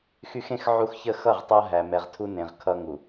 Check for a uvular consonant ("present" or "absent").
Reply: present